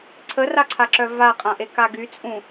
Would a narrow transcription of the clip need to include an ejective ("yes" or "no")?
yes